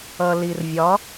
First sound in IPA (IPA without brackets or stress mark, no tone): ʌ